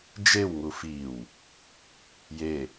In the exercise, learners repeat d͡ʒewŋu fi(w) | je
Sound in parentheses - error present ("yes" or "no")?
no